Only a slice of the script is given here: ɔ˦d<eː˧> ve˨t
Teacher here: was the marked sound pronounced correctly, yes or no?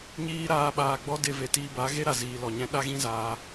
no